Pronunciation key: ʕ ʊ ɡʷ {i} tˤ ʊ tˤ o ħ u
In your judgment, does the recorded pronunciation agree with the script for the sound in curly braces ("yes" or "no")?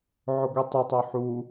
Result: yes